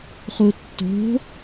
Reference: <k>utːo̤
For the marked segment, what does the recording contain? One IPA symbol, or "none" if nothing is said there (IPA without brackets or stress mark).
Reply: χ